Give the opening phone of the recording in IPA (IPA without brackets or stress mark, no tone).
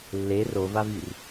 lː